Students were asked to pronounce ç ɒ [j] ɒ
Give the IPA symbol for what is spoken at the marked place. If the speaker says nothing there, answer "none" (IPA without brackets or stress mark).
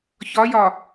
j